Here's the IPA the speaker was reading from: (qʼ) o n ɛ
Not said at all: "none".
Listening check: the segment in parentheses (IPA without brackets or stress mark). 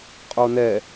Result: qʼ